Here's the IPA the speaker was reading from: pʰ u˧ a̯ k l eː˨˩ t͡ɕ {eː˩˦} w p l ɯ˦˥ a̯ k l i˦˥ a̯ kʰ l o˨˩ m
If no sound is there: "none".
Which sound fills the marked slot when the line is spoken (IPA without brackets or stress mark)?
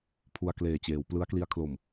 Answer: eː˩˦